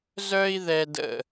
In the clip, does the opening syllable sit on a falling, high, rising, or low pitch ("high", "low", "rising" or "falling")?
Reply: high